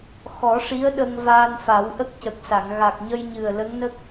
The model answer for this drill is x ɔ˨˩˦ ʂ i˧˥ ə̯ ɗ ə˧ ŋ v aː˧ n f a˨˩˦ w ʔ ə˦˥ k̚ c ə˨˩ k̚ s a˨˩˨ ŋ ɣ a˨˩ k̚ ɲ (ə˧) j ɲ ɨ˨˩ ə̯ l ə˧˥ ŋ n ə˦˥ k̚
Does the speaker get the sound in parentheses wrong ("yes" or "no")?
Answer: no